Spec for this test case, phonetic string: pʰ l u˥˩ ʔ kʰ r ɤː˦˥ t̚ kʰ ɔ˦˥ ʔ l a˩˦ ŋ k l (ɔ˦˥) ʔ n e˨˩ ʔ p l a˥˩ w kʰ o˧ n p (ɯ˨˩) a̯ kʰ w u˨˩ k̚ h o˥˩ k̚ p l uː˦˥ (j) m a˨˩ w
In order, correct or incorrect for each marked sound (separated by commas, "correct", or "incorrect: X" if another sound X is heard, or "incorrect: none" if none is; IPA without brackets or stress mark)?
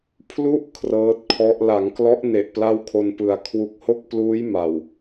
correct, correct, correct